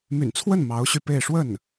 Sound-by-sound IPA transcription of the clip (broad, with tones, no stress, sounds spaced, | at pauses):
m y̰˨˩ n t͡sʰ w ə˥˩ n m ɑ˧˥ ʊ̯ ɕ y˧ p e˥˧ ɪ̯ ʂ w ə˥˩ n